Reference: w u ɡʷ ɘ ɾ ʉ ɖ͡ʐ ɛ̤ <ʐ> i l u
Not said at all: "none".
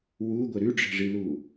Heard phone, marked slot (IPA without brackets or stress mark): ʐ